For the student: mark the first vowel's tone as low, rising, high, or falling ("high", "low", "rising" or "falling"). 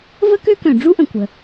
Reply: high